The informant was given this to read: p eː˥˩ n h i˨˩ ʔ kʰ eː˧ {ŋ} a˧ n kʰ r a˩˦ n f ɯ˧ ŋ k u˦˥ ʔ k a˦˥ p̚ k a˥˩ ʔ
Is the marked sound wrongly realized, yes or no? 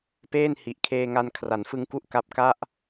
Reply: no